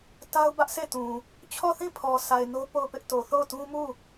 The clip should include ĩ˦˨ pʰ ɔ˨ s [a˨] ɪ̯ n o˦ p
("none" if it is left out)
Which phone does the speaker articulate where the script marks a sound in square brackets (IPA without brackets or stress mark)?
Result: a˨